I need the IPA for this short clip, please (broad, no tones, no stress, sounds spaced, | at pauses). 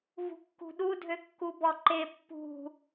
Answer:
v ṳ kː ṳ ɗ u dʱ ø kː u b ɔ ǃ e pː ṳ